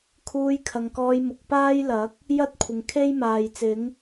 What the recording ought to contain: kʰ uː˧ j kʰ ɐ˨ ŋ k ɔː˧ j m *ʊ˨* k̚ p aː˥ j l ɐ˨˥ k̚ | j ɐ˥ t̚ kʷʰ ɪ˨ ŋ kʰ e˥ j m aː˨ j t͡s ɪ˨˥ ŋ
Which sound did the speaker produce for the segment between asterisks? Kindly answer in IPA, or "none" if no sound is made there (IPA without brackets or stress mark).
ʊ˨